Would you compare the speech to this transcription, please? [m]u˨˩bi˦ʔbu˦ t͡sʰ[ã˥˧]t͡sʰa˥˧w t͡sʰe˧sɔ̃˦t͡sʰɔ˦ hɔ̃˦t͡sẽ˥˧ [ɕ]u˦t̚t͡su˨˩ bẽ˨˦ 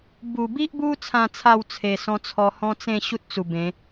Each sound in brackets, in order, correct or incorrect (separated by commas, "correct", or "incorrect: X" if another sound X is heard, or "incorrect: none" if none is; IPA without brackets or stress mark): incorrect: b, correct, correct